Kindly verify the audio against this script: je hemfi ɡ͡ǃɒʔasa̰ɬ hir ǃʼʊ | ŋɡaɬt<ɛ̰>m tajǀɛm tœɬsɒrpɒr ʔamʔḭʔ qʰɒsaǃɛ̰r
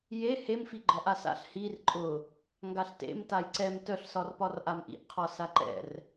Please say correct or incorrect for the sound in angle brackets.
incorrect